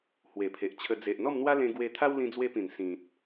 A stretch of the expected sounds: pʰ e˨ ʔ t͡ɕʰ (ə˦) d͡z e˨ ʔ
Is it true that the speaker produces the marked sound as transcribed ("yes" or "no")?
no